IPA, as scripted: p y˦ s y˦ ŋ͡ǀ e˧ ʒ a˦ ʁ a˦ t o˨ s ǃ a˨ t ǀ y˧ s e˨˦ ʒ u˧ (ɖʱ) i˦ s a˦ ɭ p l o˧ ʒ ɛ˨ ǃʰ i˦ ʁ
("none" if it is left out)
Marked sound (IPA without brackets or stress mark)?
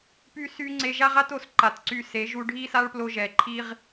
ɖʱ